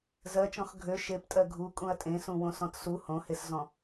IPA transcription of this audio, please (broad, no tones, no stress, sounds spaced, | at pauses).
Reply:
z ɜ t͡ʃ ɔ̃ x ɡʱ ø ʃ e p tʼ ɜ ɡʱ u kʼ ũ ɐ̯ tʼ ẽ s ũ w õ s ɔ̃ t s u h õ h e s z ɔ̃